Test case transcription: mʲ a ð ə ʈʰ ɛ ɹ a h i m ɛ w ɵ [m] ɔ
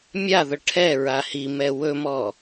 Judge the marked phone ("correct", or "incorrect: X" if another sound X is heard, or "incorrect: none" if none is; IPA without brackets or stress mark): correct